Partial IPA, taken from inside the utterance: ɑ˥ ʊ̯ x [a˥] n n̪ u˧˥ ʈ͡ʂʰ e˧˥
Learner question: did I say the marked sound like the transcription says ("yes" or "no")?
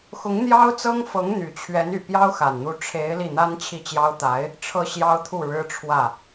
no